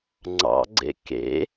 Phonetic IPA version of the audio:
ŋ͡ǀ ɑ̰ ɡ͡ǀ ḛ k ḛ

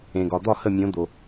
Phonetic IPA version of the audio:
ẽ˩ ɡ ɒ˩ d̪ ɒ˥˨ h ə˥˨ mʲ õ˨˥ d̪ o˩

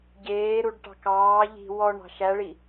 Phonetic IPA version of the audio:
ɟ eː ɾ u ɖ ʈ ɑ̤ k ɑː ʎ i̤ w ɔ ɳ ɑ̤ ʃ æ ɭ i

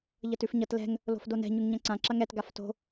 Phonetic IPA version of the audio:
ʎ ʌ t ʉ f ɲ ʌ t l ɛ̤ ŋ | l o̤ f d o n ɛ̤ ɲ ʉ ŋ ɲ ɐ̃ ǀ ã ǁ ɐ ŋ ɛ t ɡ a f t o̤

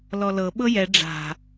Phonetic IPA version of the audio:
l ɔ l ɤ ɓ ɤ j ɛ ɖ͡ʐ a̤

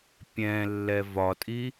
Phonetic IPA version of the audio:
pʲ ɛ̃ lː ɛ v ɒ tʼ i

